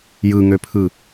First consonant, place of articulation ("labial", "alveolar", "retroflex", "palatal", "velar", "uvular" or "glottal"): palatal